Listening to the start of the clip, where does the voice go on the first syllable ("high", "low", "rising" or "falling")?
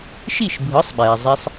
falling